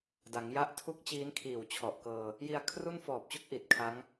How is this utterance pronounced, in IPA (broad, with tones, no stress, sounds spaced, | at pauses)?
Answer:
d a˩˦ ŋ j a˦˥ ʔ tʰ u˦˥ k̚ t͡ɕ iː˦˥ n kʰ iː˨˩ w t͡ɕʰ ɔ˨˩ ʔ k ɤː˧ | j i˧ a̯ kʰ r u˥˩ n f ɔː˨˩ p̚ t͡ɕ u˥˩ k̚ ʔ i˨˩ t̚ kʰ a˦˥ ŋ